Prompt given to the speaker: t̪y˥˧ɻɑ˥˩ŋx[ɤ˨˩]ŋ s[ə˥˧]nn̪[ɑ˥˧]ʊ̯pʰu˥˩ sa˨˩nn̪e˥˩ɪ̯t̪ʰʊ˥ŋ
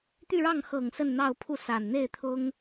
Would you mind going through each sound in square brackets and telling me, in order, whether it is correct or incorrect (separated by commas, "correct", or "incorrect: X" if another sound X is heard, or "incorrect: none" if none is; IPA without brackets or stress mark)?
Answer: correct, correct, correct